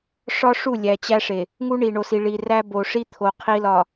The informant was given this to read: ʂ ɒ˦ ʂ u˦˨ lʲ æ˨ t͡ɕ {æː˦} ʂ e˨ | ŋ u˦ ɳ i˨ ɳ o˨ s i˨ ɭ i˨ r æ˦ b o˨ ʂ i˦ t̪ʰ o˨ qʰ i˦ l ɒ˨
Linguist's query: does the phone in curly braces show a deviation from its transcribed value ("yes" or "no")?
yes